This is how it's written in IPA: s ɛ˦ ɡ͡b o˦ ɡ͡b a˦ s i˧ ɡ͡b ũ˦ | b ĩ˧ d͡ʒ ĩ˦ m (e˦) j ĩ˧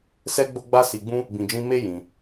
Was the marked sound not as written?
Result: no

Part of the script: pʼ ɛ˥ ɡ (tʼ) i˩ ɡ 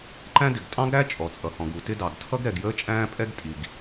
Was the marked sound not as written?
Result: no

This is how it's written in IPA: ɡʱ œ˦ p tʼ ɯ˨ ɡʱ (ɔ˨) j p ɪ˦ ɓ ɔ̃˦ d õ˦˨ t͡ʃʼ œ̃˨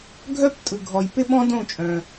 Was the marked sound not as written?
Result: no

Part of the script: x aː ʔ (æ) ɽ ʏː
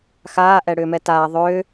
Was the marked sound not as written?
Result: yes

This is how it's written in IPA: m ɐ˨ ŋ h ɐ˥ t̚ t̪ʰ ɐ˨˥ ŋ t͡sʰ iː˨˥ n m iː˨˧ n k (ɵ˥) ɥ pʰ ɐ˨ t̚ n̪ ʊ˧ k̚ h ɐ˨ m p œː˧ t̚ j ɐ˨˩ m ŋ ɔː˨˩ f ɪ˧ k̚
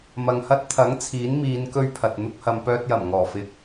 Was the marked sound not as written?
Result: no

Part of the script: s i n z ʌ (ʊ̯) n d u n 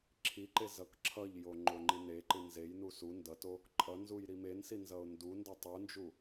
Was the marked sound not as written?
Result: no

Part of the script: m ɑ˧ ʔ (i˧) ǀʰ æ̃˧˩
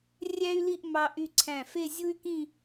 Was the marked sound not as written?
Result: yes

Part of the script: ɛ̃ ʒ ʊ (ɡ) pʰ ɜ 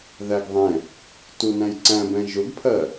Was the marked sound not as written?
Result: no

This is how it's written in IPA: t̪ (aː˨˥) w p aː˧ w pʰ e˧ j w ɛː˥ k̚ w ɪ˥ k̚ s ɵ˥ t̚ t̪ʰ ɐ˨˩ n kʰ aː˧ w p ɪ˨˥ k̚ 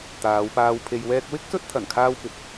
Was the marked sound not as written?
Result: yes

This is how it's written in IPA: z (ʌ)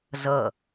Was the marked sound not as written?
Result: no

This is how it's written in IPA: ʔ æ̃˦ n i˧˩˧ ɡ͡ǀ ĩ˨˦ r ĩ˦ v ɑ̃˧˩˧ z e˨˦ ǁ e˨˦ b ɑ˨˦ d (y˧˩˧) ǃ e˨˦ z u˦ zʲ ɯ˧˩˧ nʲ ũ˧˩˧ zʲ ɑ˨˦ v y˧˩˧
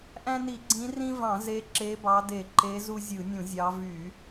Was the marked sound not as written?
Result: yes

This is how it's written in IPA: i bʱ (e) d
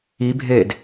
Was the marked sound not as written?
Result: no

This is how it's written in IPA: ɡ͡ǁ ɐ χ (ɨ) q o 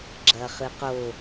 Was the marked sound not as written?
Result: no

